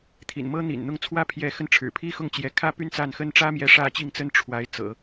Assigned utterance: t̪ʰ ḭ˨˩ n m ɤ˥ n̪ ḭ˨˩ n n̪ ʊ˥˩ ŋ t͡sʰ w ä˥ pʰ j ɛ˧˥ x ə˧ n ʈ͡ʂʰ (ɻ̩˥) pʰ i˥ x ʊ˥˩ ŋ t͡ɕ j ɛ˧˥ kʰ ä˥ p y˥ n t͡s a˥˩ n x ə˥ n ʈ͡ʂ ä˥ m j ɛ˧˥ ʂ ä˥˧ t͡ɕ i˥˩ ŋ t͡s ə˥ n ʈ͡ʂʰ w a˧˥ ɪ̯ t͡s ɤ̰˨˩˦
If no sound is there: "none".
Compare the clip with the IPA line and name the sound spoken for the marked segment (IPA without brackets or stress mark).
ɻ̩˨˩